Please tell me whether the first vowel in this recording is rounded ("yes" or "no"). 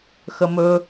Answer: no